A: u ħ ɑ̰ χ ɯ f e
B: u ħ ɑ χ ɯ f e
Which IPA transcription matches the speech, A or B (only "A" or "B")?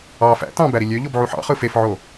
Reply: A